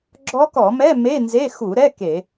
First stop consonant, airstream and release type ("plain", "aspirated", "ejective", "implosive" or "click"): click